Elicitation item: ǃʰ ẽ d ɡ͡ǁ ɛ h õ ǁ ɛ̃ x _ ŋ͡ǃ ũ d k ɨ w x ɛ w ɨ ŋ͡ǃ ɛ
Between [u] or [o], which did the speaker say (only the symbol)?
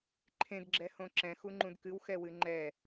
u